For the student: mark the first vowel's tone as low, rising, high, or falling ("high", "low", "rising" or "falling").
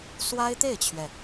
high